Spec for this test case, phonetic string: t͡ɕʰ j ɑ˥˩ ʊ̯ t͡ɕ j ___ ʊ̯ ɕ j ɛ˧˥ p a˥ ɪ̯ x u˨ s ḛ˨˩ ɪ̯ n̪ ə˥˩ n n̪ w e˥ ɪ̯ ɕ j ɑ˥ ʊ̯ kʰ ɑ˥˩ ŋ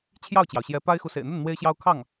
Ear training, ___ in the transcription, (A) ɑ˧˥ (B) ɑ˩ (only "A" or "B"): B